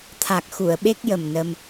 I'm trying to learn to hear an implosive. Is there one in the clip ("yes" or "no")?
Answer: yes